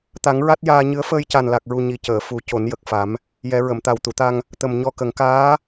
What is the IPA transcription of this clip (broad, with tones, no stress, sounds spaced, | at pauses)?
t̪ a˨˩˦ ŋ ɹ a˦˥ t̚ j aː˧ ɲ ɨ˧˥ ə̯ f əː˧ j c a˨˩ n l a˨˩ k̚ ɹ u˨˩ ɲ i˨˩ c əː˨˩˨ f u˨˩˦ c o˨˩˦ n j ə˨˩ k̚ f a˨˩˦ m | j ɛ˨˩˦ ɹ ə˨˩˨ m t̪ a˨˩ w t̪ u˨˩˨ t̪ a˧ ŋ | t̪ ə˨˩ m ɲ ɔ˧ k ə˨˩˦ ŋ k aː˧˥